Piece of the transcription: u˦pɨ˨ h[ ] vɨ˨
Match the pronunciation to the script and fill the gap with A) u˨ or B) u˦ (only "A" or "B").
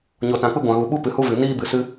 B